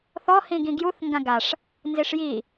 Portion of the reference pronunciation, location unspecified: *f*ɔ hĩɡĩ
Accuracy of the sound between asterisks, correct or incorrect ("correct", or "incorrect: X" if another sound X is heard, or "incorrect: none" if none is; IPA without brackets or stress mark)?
incorrect: θ